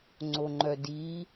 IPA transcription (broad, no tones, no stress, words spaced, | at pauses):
ŋ͡ǀoŋ͡ǃœdi